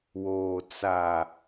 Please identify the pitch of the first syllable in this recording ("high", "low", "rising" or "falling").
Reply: low